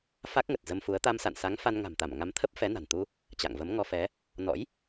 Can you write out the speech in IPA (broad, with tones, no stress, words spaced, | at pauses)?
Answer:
fa˦˥k̚ŋə˨˩t̚ zə˧mfu˨˦ə̯ t̪a˧msa̰˧˨nsa˨˦ŋ fa˧nŋa̤˨˩mt̪a˧˩m ŋa˨˦mt̪ʰə˦˥p̚ fɛ˨˦na̤˨˩nt̪u˧ | t͡ɕa̰˧˨ŋvə˨˦m ŋɔ˧fɛ˨˦ | nɔ̰˧˥j